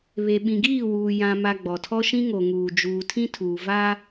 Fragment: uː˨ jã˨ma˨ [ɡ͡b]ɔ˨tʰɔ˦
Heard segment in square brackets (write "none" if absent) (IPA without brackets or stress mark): ɡ͡b